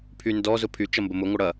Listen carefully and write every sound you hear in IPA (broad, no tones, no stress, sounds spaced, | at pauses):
pʰ y n d ɔ z ʊ pʰ y t͡ʃ ɐ m b ə m ʊ ŋʷ ɪ ɽ ɐ